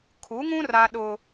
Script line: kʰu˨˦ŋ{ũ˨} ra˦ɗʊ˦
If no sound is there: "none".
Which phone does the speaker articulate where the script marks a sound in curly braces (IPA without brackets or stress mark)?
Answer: ũ˦